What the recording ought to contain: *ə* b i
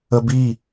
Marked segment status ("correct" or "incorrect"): correct